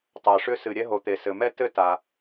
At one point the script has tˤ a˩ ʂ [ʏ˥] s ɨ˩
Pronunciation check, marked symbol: correct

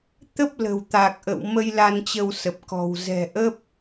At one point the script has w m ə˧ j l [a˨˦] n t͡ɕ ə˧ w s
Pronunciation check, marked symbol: incorrect: a˧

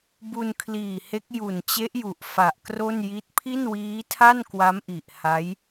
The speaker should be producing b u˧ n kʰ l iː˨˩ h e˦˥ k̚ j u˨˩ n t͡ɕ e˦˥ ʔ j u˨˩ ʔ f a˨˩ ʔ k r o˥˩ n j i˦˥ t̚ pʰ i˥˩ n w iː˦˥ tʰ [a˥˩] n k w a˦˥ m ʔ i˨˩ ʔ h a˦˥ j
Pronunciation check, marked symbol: correct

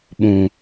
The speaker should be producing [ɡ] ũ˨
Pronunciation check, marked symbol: incorrect: ɓ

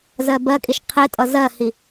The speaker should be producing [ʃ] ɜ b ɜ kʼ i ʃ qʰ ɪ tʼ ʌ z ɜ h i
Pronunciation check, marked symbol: incorrect: z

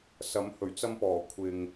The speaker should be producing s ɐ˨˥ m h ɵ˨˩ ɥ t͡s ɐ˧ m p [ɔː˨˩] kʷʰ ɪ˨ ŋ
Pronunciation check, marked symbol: correct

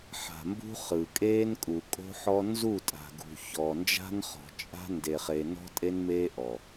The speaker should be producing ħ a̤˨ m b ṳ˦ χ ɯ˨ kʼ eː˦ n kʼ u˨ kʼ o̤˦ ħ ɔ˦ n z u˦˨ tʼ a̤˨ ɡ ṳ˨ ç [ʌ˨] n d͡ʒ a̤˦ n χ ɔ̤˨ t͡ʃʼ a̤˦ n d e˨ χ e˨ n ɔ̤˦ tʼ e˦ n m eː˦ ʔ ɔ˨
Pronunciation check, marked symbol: incorrect: ɔ˨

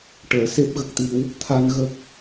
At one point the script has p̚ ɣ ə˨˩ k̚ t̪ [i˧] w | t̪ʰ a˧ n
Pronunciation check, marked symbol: correct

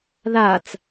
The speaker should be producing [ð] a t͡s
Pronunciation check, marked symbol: correct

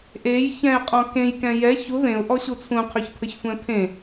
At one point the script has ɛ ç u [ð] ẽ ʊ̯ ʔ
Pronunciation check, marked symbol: correct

